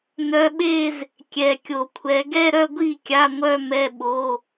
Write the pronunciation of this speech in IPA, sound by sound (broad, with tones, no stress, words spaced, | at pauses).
nœ˨˦ɓe˥˧z | kʲɛ˨kʲo˨kʷʰɛ˨˦ ɡɛ˥˧ɾœ˥˧ɡʷi˥˩ kʲa˧˥˧ŋʷœ˥˧mɛ˧˥˧ ɓo˧˥˧